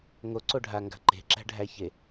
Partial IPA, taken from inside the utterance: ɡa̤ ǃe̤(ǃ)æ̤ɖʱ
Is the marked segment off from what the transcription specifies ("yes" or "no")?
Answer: yes